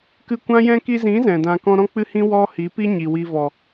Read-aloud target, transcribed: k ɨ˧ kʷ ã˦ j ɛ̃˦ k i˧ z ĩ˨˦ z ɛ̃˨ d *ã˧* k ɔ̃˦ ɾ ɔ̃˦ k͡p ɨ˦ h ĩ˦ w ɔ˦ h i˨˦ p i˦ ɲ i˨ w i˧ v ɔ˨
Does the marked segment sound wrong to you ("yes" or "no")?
no